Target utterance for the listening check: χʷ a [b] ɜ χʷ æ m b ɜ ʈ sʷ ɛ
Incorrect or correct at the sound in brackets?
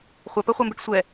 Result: incorrect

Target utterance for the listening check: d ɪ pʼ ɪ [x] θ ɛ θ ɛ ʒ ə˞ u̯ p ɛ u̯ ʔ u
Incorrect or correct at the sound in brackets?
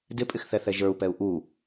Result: correct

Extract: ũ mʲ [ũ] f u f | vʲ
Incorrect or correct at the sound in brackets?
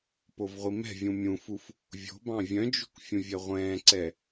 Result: correct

